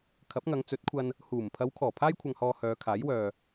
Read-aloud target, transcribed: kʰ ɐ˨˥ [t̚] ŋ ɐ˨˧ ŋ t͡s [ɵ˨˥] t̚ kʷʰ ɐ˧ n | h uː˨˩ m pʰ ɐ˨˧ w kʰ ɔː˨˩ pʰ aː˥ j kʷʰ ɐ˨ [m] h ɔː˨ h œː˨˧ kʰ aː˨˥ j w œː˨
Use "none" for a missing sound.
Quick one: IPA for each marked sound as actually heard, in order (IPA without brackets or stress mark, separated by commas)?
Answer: p̚, ɵ˨˥, ŋ